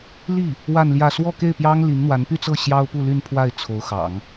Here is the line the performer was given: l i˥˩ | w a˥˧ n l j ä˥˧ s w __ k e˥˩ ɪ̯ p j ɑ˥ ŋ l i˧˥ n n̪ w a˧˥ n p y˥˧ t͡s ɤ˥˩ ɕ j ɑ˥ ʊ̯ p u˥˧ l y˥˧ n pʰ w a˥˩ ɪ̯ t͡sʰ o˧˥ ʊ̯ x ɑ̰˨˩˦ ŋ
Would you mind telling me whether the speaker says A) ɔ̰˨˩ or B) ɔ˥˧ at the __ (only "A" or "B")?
B